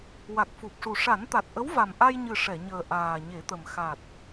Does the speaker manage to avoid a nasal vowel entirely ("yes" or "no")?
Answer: yes